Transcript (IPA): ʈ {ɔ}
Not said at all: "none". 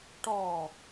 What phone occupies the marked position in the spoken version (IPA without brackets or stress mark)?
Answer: ɔ